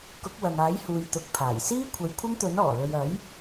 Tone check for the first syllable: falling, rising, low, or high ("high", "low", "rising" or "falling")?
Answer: rising